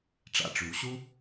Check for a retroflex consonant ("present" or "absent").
present